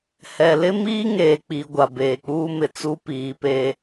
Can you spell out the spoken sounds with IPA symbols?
h ɛ˨ l ɪ˦ m iː˦ ŋ eː˨ k͡p i˨ ɡʷ a˨ b eː˨ k͡p uː˦ m ɪ˨ t͡s u˦ p iː˨˦ p eː˦

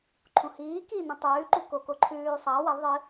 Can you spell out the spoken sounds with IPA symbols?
ǃʰ ũ h iː k iː n ĩ tˤ ʉː ǃ u k o k o ǃʰ ʉː sˤ ɐː w ɐ lˠ ðˤ ɨ

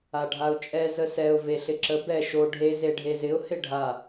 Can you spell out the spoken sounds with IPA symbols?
a ɖʱ a ʊ̯ t͡ʃʼ ɛ z ə s ɛ ʊ̯ v e ɬ ɪ ǁ ə b ɛ ʃ o ɖʱ e z e ɖʱ e z ɪ ʊ̯ h ɪ ɖʱ a

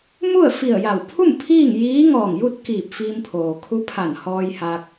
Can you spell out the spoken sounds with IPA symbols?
m u˥˨ ə̯ f i˧˩ ə̯ j a˧˩ w pʰ u˥˨ m pʰ iː˥˨ ŋ j iː˧˥ ŋ ɔː˧˩ ŋ j u˥˨ t̚ k iː˧˩ p̚ f iː˧ m pʰ oː˩ kʰ u˧˥ pʰ a˧˩ n h ɔː˧ j h a˧ k̚

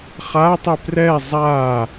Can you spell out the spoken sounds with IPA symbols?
χ a tˤ i p r ɛ zˤ a

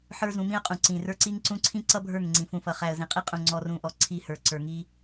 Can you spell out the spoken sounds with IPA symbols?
ħ ə˞˦ z ũ˨˦ m ĩ˦ ə̯ qʼ ũ˨ ǀ ĩ˨ r ə˞˦ ǀ i˦ ŋ ǀ ũ˦ ǀʰ ĩ˦ ǀ ʌ˦ bʱ ə˞˦˨ ŋ ŋ͡ǀ ĩ˨ f ũ˨ f ʌ˨ χ æ˨ ə̯ z ĩ˨ qʼ i˦ qʼ ũ˨ ŋ͡ǀ ɔ˦ r ũ˦˨ ʔ ɔ˦ ǀʰ i˦˨ h ə˞˨ ǀ ə˞˨ ŋ i˦

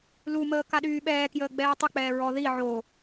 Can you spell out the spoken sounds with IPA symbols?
l u m əː k a ɗ yː ɓ ɛː k j əː ɡ͡b ɛː tˤ ə k͡p ɛː ɹ ɔ ð i ʕ o

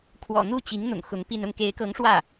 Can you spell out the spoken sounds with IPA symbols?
kʰ w ɔ̰˨˩ n̪ u˥˩ t͡ɕ i˧˥ ŋ n̪ ʊ̰˨˩ ŋ x ʊ˧˥ ŋ p i˥˧ n ʊ˥˩ ŋ k e˧˥ ɪ̯ k ɤ˧˥ ŋ ʂ w ä˥˩

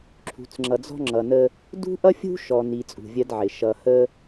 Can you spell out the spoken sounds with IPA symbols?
ǁʰ ṳ˨ t͡s ŋ͡ǁ ʌ˨ d͡z ɔ̤˦ ŋ͡ǁ ʌ˨ n ə˦ | d ṳ˦ ʔ ʌ˦ fʲ ṳ˦ ʃ ɔ˨ n i˨ t͡sʼ ṳ˨ vʲ ɜ˦ d ʕ ɪ˨ ʃ ʌ˨ h ə˦

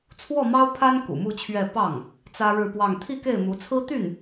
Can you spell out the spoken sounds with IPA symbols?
t͡sʰ w ɔ˥˩ m ɑ˥ ʊ̯ pʰ a˥ n k ṵ˨˩ m u˥˧ t͡ɕʰ ɥ ɛ˥˧ p ɑ˥˩ ŋ | t͡s ä˥ ɻ ɻ̩˥˧ p w ɑ˥˧ ŋ t̪ʰ i˥˧ k e˥˩ ɪ̯ m u˧˥ t͡sʰ ɹ̩˥ t̪ y˥˩ n

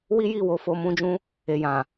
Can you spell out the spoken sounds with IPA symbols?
w i˦ j i˦˨ w o˨˦ f o˧ m ũ˦ d͡ʒ ũ˦ | e˨ j ã˨

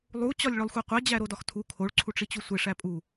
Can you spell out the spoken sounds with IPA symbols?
lˠ u t͡ɕ ɒ lʲ ɭ o lˠ xʷ i qʷ e d͡ʑ æ ɾ o d ɒ x tʰ u kʰ o ɭ ǀʰ u ʈ͡ʂ i t͡ɕ u sʷ e ʂ æ pʼ u

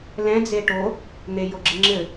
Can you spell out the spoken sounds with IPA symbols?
l ɛ̃ d͡z e ʈ o | n̪ e j o ɡ͡ǁ ɨ ŋ͡ǁ ɘ

